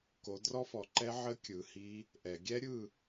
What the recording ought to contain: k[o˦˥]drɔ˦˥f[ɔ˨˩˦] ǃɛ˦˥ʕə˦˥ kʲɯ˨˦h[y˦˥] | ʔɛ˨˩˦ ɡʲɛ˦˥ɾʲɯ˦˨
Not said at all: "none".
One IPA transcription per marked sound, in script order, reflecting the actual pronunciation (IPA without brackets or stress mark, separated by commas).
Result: o˨˦, ɔ˨˩˦, i˦˥